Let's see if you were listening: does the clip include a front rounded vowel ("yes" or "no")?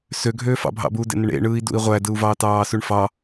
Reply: yes